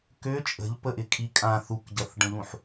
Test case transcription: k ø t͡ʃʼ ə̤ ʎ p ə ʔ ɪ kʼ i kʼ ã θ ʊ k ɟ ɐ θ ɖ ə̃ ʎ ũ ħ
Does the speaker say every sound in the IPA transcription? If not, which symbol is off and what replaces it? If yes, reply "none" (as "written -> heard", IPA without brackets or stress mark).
ʊ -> u